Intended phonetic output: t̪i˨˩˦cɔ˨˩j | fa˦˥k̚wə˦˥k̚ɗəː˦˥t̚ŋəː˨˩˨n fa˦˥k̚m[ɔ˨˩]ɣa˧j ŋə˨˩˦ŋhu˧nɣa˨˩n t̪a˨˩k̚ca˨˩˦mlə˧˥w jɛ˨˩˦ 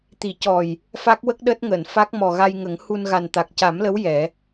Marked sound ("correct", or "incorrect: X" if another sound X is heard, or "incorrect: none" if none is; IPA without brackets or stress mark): correct